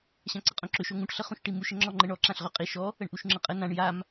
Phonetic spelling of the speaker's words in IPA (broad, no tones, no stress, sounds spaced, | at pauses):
ɕ ã ǀ ə qʼ õ ǁ ø ʃ o ŋ ũ ʈ ɬ ə χ ũ ʃ ʈ i m u ʃ ə ŋ͡ǁ ɔ ŋ͡ǃ ə ɳ ɔ ǁ ã ɬ ʁ ø qʼ i ʃ ɔ | ə ɳ ʔ u ʃ ŋ͡ǁ ə qʼ ə n ã ɳ j a m